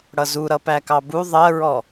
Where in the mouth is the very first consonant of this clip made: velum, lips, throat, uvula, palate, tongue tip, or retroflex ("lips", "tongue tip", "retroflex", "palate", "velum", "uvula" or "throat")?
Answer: retroflex